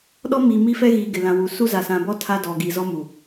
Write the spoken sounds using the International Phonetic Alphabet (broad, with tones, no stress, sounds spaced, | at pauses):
ɗ ɔ˦ m iː˨ m i˦ f ɛ˦ ɣ iː˨ ɡ ɪ˨ l ã˨ w u˨ s u˦ z a˨ s ã˨ b ɔ˦ tʰ a˦ d ɔ˨ ɡ i˨ z ɔ˦ m u˨